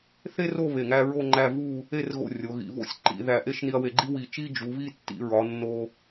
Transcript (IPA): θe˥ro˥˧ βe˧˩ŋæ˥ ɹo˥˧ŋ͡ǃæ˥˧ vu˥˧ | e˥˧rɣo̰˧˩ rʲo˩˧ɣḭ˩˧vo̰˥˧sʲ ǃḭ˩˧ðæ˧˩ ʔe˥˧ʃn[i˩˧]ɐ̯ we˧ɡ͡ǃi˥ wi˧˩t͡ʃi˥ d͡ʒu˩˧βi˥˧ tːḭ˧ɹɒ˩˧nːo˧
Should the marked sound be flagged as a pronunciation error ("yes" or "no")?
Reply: yes